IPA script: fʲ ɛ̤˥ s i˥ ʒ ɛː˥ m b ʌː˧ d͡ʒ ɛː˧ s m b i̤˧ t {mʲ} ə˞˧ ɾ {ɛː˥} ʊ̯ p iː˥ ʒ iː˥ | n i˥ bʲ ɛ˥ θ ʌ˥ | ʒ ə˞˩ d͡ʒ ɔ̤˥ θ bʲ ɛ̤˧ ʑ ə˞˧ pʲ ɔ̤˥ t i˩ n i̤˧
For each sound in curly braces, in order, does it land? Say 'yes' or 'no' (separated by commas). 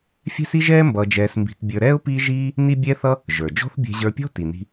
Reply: no, yes